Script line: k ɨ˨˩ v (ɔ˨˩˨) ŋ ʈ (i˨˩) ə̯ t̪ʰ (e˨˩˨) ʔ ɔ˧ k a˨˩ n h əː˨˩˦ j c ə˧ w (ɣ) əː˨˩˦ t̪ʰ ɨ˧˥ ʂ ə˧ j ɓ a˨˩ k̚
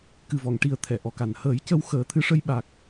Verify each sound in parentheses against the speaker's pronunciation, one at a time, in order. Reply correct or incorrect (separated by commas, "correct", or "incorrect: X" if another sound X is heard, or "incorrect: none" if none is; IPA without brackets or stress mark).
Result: correct, correct, incorrect: ɛ˨˩˨, incorrect: x